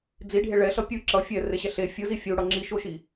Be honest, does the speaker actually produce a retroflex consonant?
yes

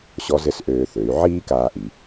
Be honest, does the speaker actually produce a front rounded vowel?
yes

